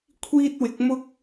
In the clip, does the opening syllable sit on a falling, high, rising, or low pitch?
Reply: high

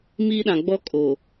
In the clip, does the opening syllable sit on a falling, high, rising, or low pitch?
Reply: high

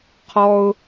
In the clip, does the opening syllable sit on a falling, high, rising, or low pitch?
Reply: low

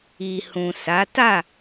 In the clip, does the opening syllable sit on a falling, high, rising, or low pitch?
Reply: low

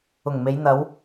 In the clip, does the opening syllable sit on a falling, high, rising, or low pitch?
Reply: low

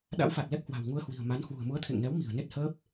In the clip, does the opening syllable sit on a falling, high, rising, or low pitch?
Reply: rising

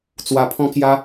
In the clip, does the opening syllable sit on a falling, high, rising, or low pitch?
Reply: low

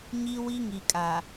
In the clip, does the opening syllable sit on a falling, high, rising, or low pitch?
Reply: high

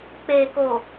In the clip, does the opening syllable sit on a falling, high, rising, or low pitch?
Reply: low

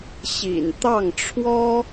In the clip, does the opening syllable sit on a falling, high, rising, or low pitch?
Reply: low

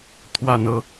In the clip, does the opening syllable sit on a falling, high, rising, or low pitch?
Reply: low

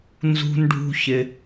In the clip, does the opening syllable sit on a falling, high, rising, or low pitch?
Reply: low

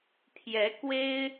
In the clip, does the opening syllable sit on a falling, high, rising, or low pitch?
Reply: rising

